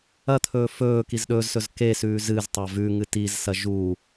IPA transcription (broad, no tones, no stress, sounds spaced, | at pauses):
ɐ t̪ʰ ɵː f ɵː k i z ɗ ɵː z s ɵ z k e s ʉː z ɨ z tˤ a v ʉ ŋ ɨ t i z s ɐ ʒ u